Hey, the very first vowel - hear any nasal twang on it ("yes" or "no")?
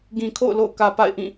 yes